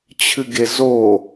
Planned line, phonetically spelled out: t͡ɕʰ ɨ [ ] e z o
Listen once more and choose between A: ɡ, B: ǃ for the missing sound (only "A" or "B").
A